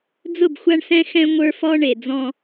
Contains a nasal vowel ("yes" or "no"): yes